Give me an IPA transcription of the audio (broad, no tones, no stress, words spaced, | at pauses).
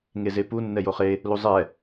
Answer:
ŋezepu nːɛjoχe | luzˤɛ